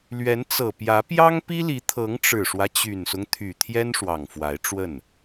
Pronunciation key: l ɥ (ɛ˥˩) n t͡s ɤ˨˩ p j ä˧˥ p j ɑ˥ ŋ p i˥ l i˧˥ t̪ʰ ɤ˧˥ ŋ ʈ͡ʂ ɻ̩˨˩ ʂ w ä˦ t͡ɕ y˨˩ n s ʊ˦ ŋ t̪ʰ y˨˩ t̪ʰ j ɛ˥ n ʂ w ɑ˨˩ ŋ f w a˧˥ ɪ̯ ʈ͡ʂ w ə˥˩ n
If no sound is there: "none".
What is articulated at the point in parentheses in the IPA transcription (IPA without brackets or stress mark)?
ɛ˧˥